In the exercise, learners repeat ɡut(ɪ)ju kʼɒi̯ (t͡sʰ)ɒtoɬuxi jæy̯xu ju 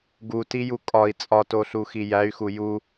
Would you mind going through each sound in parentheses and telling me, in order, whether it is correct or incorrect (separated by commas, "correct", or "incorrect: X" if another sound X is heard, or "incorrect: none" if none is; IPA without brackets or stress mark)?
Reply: incorrect: i, incorrect: t͡sʼ